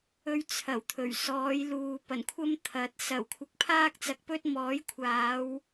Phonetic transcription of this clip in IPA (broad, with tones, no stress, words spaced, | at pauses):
ɵ˧ɥ t͡sʰɐ˨˩wt̪ʰɵ˨˩ɥsɔː˨˧jluː˨ pɐ˨˩nkʷʰɐ˥mt̪ʰɐ˨˥t̚ sɐ˨˩wkʷʰɪ˨˥k̚ pʰaː˥k̚t͡sɐ˨˥k̚pɵ˥t̚ mɔː˨˥jkʷʰaː˨˧w